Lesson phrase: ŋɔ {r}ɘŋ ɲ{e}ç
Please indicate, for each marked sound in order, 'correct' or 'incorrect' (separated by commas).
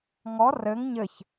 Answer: correct, incorrect